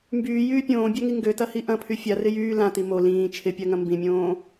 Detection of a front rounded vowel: present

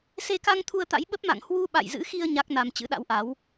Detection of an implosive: present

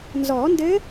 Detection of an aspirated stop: absent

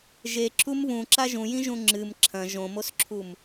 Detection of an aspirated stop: present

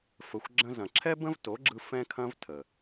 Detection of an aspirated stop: present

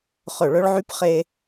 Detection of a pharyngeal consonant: present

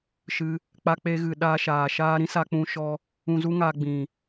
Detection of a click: absent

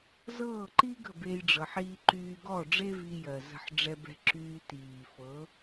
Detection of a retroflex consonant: present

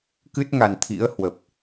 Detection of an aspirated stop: present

